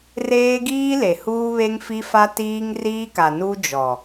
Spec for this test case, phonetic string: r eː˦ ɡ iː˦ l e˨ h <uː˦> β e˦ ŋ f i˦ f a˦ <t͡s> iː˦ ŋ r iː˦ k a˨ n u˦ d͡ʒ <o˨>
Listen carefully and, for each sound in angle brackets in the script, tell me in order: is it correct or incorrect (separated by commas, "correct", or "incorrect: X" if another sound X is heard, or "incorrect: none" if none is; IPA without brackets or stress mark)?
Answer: correct, incorrect: t, incorrect: ɔ˨